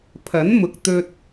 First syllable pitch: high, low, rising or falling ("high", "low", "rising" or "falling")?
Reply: rising